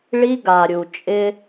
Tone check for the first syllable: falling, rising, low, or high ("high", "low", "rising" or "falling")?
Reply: high